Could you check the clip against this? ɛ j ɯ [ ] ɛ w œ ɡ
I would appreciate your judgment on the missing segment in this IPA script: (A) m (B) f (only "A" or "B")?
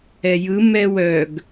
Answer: A